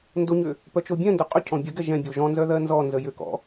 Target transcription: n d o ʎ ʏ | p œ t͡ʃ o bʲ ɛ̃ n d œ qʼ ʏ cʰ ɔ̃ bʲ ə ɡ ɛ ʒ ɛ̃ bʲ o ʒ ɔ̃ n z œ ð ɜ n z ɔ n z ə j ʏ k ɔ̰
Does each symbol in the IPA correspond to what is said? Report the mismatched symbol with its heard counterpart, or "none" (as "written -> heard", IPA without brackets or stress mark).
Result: ʎ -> ɲ